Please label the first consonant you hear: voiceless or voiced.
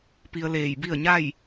voiceless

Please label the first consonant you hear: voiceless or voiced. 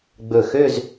voiced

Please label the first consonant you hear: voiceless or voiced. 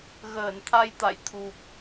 voiced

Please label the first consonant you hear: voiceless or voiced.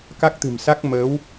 voiceless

